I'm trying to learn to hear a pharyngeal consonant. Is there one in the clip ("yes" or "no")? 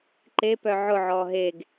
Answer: yes